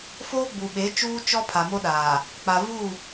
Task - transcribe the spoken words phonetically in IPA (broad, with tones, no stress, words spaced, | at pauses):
foː˦ɡ͡bu˨ɓe˨˦ t͡ʃuː˦t͡ʃɔ˦ pʰa˨mo˦ɗaː˨ | k͡pa˨vu˦˨